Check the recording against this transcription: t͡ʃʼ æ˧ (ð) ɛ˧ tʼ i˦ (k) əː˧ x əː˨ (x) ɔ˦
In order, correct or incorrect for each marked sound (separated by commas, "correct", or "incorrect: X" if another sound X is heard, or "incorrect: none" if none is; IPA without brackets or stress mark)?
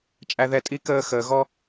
correct, correct, incorrect: ɣ